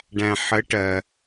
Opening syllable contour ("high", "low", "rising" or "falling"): low